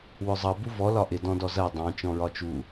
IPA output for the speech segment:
w ʊ zˤ ʌ b u v ɔ l ɒ ʔ ɪ d ɔ̃ d ɔ z ɜ dˤ ɑ̃ t͡ʃ ɔ̃ ɹ ɒ t͡ʃ u

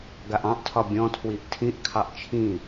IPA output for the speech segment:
ɡ a ʔ ɑ̃ ʔ tʰ ɒ bʲ ɔ̃ tʰ w i ʔ tʰ ĩ ʔ kʰ ɑ ʔ t͡ʃʰ ĩ

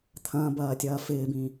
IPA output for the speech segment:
t̪ʰ ɐ̃ː b ɐː tʲ ɐː f ɪː b ĩ

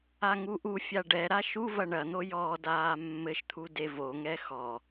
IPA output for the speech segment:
a ŋ u ʔ u fʲ a ɖ ɛ ɾ a ʃ u v ɐ ɳ ɐ n̪ o j ɔ d aː mː ɘ ʃ t̪ʰ u d e v o ŋ ɛ x ɔ

